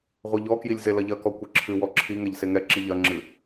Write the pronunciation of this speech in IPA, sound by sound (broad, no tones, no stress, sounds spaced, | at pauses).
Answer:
ʁʷ ɛ ʎ ɔ k j i lʲ z e l ɐ ʎ ɐ k ɔ kʷ ɨ ǁʰ ɨ w ɔ ǁʰ i ŋ ɛ ʎ s e ŋ ɛ ǁ i ʎ ɐ ŋ͡ǁ ɨ